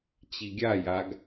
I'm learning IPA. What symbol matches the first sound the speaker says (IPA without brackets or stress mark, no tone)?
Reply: t͡ɕ